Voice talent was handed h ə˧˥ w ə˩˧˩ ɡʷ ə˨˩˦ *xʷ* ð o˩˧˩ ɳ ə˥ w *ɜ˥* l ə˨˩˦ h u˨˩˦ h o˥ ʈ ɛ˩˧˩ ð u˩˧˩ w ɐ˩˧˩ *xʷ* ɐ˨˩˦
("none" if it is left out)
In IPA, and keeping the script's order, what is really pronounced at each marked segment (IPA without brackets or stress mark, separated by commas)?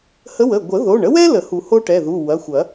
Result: none, ɛ˥, xʷ